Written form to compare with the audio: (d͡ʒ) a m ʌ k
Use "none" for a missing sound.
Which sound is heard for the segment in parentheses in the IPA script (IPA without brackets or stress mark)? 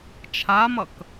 t͡ʃʰ